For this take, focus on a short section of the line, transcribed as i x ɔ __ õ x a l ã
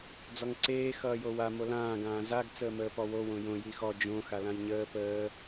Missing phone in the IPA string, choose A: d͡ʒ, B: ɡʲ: A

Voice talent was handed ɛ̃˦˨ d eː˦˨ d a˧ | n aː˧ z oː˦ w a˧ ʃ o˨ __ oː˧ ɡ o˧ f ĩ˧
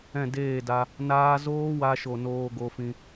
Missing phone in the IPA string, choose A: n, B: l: A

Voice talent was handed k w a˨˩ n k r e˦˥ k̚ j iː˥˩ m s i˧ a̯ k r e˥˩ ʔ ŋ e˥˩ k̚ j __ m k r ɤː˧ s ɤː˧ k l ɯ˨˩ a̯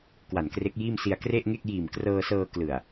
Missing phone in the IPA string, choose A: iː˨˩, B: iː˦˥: A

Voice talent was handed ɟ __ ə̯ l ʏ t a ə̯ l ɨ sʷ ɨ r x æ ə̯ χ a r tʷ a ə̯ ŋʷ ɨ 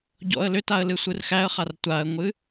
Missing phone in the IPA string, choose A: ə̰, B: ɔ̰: B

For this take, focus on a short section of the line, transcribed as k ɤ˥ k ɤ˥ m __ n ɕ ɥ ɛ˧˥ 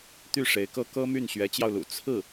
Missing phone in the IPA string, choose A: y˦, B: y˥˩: B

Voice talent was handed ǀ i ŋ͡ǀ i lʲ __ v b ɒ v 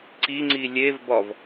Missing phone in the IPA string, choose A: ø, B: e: B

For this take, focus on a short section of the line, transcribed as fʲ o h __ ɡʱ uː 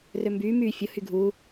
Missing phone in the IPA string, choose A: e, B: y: B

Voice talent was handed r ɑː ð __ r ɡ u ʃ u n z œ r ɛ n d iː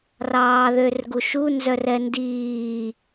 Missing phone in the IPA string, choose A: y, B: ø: B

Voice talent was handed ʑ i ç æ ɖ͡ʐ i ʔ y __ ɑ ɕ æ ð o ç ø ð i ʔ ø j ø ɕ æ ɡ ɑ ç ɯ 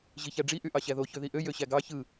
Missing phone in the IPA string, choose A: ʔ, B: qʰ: A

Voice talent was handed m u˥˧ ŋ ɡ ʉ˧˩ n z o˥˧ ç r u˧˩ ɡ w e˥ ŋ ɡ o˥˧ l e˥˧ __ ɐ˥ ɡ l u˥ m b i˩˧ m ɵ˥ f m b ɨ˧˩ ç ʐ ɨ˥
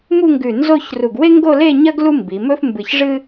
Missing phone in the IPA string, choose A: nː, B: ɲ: B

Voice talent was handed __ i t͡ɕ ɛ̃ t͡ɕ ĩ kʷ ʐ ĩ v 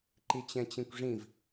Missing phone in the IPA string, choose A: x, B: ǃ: B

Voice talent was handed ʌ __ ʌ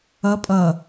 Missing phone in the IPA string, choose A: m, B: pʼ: B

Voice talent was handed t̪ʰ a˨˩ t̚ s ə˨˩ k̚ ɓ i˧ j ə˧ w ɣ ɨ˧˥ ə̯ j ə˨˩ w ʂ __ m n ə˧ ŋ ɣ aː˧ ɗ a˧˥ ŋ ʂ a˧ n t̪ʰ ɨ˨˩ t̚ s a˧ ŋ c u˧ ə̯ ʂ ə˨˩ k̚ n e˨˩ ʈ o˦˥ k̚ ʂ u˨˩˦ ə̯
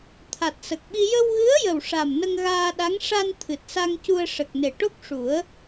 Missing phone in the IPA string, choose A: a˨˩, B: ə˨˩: A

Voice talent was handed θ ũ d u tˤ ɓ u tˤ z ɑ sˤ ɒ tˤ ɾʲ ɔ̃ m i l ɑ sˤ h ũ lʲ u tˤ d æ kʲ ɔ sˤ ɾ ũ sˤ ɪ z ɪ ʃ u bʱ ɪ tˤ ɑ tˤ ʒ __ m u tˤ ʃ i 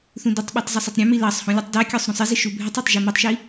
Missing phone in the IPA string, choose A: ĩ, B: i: B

